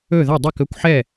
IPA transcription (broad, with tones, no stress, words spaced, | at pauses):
ɵ˥˩ðɐ˥˩ dˤɛ˥˩kɵ˥˩kʷħɛ˥˩